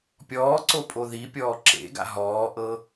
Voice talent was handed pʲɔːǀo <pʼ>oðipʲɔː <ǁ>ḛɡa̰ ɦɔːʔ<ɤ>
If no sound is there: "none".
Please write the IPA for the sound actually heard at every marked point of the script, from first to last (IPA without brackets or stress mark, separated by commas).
pʼ, ǁ, ɤ